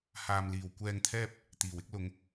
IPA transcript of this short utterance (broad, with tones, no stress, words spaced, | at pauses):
haː˨mliː˨˩w kʷɛː˧ŋt̪ʰɛː˥p̚ | t̪iː˨˩wɪ˥k̚ lʊ˨˧ŋ